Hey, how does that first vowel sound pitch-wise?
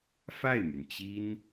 falling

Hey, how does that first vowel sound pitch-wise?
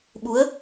rising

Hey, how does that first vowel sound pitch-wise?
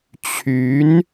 rising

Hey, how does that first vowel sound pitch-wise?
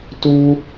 high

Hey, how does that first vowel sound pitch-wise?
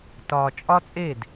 low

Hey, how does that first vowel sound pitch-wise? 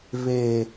low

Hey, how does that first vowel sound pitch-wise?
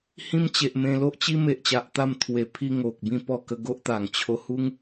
high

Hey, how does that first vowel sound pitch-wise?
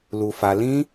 low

